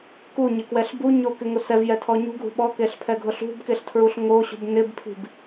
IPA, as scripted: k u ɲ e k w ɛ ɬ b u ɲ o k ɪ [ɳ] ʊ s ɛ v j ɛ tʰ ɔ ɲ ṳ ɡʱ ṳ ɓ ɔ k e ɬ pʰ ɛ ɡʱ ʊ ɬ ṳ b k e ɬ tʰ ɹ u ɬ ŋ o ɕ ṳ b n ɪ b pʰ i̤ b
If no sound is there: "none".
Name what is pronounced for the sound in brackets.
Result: ŋ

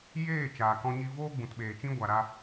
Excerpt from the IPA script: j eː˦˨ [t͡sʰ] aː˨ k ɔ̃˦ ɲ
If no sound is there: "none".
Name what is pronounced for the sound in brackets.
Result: t͡ʃ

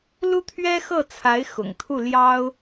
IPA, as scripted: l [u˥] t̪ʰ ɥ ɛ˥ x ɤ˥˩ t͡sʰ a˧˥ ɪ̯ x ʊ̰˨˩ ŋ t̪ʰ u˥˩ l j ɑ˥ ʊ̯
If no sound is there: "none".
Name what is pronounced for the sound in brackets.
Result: u˥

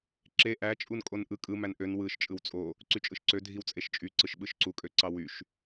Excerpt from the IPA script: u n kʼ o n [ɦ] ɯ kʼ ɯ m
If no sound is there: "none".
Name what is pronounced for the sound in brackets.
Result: ʔ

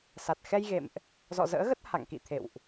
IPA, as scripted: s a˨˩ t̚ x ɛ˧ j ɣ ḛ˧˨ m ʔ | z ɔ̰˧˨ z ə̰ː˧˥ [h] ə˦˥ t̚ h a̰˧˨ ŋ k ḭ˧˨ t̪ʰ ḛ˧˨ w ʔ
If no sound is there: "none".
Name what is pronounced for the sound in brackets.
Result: ɣ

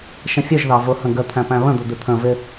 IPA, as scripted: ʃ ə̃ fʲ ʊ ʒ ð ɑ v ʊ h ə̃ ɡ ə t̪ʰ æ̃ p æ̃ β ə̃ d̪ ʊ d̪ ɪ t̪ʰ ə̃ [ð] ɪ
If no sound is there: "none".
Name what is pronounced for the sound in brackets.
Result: v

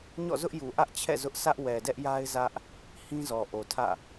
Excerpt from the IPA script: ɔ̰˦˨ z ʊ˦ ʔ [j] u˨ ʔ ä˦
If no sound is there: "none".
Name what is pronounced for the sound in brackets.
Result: j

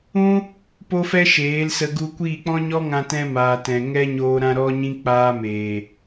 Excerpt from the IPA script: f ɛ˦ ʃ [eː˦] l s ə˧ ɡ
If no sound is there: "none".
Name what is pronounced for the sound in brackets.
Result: eː˨˦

